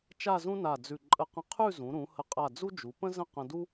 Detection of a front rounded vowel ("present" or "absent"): absent